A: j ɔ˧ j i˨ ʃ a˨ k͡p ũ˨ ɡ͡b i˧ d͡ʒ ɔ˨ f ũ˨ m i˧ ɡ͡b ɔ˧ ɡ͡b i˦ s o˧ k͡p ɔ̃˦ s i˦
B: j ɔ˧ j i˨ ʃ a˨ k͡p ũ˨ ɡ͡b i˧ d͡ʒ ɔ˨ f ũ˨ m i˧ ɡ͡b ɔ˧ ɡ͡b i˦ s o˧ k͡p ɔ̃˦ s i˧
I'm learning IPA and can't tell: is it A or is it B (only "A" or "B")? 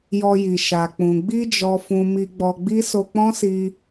B